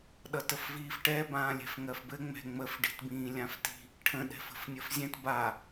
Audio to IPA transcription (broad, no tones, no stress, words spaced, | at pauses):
ɗʌtəfviːfʈɛ bãːlʲɛ̤fŋɜfbɘ ŋ͡mɛ̤ŋ͡məf ɖi̤tbĩːlʲãfti̤ | ʈʰə̃ɗɛ̤ fə̤fnʲɘfzʲɛ̃t ba